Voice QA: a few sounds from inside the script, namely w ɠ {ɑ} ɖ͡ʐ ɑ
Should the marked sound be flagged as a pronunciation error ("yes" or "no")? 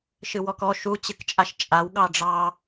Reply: no